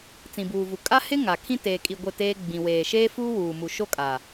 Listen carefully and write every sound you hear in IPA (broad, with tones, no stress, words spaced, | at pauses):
t͡sĩ˨buː˨vu˨ kʼa˦hɪ˦ ŋa˨kʰĩ˦ teː˨kʼi˨ ɡʷɪ˦˨teː˦ ɡ͡bĩ˨weː˨ʃeː˦ fu˦wuː˨mu˨ ʃo˦kʼa˨